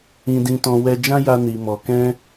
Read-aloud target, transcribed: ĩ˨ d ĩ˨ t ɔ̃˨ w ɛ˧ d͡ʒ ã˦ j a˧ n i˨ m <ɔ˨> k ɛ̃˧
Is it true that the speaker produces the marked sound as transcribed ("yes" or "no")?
yes